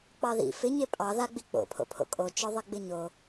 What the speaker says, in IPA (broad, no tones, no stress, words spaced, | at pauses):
k͡pɑðḭ fɪ ɲepʼɑðaɡ͡bi k͡po̰pʰo̰pʰo̰ kʼot͡ʃœðˤi ɡ͡bɪɲo